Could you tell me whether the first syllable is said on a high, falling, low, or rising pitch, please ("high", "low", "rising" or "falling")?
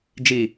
low